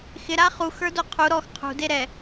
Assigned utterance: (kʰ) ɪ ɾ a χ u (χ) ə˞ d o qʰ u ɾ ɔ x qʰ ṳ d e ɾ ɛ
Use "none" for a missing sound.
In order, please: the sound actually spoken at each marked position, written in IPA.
x, x

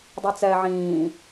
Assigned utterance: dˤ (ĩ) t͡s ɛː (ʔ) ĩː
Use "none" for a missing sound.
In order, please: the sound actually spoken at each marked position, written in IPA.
i, ʕ

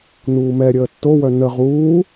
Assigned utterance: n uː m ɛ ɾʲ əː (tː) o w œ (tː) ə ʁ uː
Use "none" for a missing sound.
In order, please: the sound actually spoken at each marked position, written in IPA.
tː, n

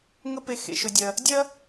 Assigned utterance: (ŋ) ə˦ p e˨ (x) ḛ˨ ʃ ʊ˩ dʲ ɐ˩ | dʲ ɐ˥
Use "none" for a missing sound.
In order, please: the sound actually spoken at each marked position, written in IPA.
ŋ, x

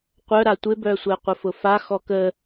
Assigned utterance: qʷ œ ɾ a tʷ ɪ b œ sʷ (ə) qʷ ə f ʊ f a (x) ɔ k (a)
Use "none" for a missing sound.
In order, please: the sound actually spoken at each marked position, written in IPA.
ɛ, x, ə

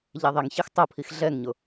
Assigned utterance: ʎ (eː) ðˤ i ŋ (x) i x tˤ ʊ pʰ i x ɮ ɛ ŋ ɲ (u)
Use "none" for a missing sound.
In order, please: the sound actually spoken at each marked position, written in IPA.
e, ç, ʊ

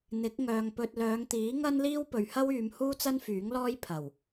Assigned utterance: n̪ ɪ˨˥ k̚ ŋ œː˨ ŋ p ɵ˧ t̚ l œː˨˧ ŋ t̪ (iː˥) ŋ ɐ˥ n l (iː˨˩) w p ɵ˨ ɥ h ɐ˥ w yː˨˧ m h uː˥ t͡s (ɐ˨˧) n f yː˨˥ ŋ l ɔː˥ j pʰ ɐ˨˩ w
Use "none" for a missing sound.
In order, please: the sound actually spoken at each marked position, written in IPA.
iː˨˥, iː˥, ɐ˥

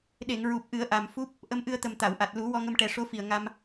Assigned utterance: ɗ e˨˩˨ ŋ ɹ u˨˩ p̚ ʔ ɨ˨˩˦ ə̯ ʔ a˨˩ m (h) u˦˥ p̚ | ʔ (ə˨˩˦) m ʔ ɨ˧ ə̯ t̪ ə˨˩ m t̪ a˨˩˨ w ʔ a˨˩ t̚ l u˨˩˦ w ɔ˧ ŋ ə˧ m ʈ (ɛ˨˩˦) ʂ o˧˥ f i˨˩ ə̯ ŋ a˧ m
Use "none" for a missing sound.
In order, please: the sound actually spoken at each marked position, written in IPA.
f, ə˧, ɛ˨˩˦

